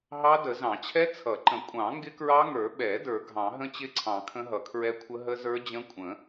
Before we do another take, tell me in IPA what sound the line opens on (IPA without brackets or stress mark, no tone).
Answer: ɦ